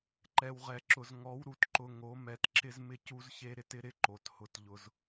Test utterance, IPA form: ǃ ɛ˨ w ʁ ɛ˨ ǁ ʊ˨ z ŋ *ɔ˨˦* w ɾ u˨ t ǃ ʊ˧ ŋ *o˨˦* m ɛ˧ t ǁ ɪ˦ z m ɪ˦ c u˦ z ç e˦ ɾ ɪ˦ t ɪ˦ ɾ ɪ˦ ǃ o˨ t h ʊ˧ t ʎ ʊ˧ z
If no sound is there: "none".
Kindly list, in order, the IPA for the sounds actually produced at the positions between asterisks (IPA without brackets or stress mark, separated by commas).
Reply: ɔ˨˦, o˨˦